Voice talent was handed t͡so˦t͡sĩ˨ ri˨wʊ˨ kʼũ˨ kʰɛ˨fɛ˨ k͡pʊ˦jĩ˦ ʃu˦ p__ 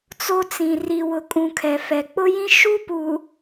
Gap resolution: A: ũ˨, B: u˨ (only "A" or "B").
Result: B